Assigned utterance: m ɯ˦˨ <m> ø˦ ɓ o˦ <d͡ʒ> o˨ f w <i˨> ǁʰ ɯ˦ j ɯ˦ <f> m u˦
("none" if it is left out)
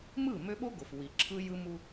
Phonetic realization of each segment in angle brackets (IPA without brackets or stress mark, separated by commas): m, ɡ, i˨, none